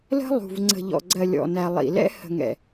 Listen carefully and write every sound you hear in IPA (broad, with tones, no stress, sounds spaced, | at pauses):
l ə̤˦ lˠ ṳ˨ v ŋ͡ǀ ə̤˨ ʎ ɔ̰˨ ɡ͡ǀ ɜ˨ lʲ ɔ̰˨ n æ˨ lˠ ḭ˨ l ɛ̰˦ h ə̤˨ ŋ ɛ̰˨